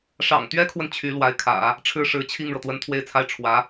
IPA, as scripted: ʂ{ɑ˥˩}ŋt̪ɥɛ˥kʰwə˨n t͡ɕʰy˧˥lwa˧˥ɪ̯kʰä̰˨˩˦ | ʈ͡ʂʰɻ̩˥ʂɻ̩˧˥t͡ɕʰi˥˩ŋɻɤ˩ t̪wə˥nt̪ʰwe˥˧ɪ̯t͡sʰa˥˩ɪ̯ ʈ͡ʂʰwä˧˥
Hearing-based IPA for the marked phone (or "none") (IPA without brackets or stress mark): ɑ̰˨˩